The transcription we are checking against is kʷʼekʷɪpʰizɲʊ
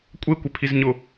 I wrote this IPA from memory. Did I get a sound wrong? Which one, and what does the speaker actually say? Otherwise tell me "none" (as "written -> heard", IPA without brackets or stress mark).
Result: none